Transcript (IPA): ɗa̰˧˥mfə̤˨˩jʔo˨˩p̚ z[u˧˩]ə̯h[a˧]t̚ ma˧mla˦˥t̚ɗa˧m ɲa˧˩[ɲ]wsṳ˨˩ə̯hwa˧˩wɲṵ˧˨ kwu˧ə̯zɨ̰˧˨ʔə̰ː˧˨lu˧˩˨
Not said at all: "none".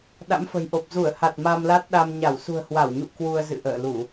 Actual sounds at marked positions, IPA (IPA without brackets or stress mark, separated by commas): u˧˩, a˨˩, none